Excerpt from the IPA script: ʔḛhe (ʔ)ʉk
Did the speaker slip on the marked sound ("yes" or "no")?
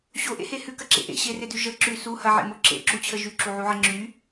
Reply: yes